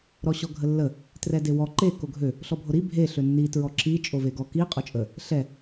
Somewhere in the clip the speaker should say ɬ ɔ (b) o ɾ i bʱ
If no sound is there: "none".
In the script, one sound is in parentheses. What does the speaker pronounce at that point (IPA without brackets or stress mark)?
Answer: bʱ